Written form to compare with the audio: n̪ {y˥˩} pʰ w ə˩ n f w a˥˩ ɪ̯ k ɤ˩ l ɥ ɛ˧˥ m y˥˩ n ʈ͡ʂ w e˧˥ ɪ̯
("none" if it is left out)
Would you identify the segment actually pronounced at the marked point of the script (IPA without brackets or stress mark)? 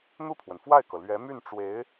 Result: u˥˩